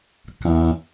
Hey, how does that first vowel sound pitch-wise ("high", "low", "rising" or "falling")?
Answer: low